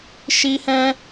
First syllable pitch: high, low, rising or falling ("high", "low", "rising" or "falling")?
high